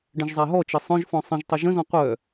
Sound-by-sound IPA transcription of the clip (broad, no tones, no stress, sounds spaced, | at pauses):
ɖ ə̃ ʒ zˤ a ɦ ɔ t͡ʃ ɘ sˤ œ̃ ʒ f ɔ̃ sˤ ə̃ ʒ tˤ ə ʒ ə̃ z ɔ̃ qʷ œ